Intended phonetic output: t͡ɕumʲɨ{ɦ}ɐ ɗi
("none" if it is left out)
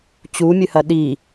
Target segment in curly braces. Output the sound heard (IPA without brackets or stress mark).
h